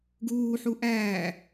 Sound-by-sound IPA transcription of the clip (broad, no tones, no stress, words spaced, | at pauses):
ɡuːħu ʔæː